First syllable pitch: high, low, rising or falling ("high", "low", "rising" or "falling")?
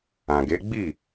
low